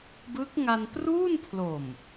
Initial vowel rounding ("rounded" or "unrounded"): unrounded